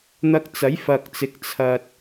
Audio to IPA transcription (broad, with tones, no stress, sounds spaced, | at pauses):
n̪ ɐ˧ k̚ t͡s ɐ˨˥ j f ɐ˨ k̚ t͡s ɪ˨˥ k̚ t͡sʰ ɐ˧ t̚